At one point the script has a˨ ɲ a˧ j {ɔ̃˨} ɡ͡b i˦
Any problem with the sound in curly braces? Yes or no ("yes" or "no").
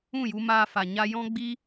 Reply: yes